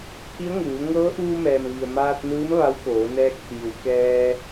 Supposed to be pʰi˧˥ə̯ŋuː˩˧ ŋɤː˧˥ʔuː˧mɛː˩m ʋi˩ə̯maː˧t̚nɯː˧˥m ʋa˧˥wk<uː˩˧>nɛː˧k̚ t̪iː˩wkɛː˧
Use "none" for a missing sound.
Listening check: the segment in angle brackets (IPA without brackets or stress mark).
oː˩˧